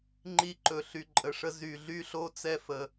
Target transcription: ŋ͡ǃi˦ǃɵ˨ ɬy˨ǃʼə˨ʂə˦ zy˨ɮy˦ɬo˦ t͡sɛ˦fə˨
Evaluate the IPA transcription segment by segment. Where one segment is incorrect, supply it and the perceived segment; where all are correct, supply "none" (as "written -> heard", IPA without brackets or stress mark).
none